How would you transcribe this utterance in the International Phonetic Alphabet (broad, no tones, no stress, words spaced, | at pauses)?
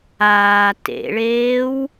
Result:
aː tḛɭeːw